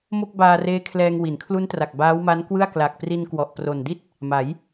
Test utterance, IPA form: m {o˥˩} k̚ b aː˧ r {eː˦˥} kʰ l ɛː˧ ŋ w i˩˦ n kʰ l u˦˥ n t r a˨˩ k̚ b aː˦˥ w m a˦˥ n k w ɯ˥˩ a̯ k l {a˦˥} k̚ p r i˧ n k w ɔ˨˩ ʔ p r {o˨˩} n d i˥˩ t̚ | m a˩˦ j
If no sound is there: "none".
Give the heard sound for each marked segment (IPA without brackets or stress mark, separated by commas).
o˥˩, eː˦˥, a˨˩, o˨˩